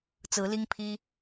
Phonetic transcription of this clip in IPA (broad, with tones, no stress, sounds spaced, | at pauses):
t͡s ɹ̩˨˦ l i˦ ŋ pʰ i˦